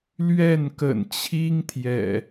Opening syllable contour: falling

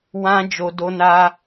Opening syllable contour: high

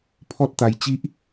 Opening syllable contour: high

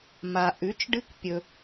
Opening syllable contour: low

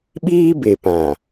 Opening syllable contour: high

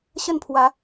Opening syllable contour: falling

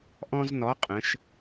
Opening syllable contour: high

